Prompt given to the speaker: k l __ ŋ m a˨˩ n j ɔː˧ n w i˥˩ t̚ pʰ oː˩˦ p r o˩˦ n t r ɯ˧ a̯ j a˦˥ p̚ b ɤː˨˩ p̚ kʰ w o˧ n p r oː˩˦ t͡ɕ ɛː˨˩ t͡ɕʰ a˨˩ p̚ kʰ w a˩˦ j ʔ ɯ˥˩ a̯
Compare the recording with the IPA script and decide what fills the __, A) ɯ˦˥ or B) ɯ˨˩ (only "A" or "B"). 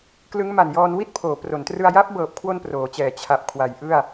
A